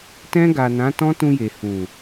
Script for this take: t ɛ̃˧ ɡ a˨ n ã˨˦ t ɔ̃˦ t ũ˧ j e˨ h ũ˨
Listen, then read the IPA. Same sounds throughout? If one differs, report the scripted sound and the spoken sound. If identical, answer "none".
none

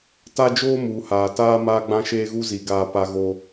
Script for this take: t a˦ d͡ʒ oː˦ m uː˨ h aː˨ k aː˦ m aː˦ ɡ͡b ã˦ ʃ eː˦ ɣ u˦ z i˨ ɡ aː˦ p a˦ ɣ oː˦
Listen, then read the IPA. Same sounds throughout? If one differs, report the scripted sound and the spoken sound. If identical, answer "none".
k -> t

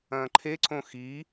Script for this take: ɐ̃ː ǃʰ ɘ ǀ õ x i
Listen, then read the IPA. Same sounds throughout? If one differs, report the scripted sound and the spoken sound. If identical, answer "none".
ɘ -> e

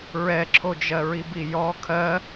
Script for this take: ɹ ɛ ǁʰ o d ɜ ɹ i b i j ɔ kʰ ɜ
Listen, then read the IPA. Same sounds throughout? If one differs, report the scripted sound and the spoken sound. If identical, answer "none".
d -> d͡ʒ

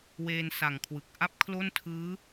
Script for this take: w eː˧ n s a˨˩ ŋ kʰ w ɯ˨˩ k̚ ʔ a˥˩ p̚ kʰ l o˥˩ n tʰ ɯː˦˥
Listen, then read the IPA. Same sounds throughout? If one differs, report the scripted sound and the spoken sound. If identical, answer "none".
none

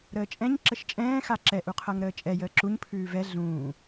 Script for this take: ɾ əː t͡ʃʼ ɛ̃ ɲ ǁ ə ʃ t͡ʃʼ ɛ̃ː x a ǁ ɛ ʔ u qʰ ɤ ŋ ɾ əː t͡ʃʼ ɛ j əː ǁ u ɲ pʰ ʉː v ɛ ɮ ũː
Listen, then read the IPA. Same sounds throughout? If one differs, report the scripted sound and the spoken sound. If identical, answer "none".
none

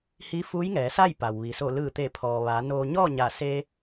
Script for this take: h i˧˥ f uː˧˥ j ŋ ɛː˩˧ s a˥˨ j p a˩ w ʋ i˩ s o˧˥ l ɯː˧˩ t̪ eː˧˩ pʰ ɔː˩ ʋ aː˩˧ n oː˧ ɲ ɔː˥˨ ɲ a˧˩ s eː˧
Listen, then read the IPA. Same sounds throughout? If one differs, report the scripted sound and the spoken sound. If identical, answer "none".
o˧˥ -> o˧˩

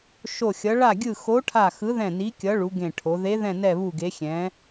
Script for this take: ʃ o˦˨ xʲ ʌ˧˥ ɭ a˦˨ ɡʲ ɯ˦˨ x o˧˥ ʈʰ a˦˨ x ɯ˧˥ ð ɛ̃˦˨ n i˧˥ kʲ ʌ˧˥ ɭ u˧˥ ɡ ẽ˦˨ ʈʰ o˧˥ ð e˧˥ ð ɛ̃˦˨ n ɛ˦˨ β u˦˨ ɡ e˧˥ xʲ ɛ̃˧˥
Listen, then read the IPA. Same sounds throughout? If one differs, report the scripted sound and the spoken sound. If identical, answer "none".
none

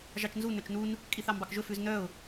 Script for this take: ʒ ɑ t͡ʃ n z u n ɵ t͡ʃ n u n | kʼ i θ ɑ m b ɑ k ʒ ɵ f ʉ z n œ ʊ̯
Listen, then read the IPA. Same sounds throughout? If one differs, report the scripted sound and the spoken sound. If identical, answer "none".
none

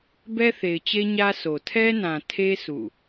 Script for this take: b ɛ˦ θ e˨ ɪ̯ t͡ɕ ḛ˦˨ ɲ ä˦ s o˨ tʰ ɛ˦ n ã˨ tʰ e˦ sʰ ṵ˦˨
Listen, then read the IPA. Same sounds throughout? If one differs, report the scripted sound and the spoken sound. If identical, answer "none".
ḛ˦˨ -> e˦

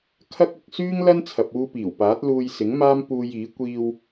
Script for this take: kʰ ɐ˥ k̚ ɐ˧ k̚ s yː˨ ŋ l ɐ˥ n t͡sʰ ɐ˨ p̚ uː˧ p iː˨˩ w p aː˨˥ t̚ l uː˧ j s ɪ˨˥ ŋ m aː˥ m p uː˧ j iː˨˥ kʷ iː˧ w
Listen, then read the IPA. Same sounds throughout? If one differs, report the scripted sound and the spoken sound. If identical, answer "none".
yː˨ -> yː˥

